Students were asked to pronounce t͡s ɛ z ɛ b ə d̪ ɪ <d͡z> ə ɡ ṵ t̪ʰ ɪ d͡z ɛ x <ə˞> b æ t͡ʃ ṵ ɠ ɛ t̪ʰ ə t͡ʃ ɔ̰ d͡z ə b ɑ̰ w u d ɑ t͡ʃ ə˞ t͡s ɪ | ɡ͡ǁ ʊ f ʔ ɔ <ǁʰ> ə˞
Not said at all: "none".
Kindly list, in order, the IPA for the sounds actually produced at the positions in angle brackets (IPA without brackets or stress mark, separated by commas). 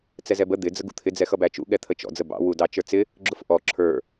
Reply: d͡z, ʌ, ǁʰ